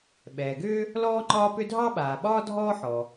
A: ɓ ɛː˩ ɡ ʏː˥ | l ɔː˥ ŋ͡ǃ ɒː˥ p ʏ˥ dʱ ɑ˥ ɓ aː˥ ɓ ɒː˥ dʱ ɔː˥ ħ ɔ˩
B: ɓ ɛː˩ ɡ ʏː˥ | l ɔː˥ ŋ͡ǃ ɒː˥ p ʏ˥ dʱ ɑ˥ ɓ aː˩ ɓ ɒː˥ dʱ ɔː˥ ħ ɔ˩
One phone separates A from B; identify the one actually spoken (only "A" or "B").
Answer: B